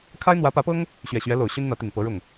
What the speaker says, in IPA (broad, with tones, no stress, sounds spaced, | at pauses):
kʰ a˥ ɪ̯ n̪ w ä˧˥ p ä˧˥ p ɤ˥ ŋ | ɕ ɥ ɛ˨˩ ɕ ɥ ɛ˧˥ l o˨˩ ʊ̯ ɕ y˥ n n̪ ä˧˥ t̪ i˨˩ ŋ p ɤ˧˥ ɻ ʊ˥˩ ŋ